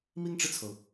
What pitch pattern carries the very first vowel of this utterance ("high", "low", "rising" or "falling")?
high